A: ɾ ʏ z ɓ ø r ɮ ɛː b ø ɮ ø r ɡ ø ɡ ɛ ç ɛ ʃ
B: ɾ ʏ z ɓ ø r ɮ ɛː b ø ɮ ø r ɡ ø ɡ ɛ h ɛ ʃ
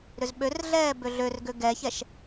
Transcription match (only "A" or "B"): A